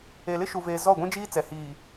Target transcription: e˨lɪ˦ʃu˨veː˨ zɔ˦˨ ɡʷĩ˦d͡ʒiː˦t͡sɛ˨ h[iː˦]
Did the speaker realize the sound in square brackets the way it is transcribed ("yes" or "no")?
no